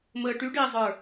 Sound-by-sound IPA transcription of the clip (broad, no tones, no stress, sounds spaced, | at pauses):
m əː ʈ y ɖ ɪː zˤ ə˞